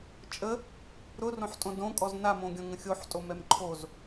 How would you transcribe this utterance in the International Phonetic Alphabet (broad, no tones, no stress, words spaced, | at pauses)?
t͡ʃʼə | ɾʊrõħtʼõ dõkʼɔz namõɡʲɔ̃ ŋə̃xʲoħtʼomɛm ǃʰoz